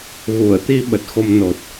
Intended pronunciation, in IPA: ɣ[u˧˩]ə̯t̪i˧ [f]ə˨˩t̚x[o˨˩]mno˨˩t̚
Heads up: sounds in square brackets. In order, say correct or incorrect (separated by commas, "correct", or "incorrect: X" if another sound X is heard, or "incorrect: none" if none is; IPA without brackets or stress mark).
correct, incorrect: ɓ, incorrect: o˧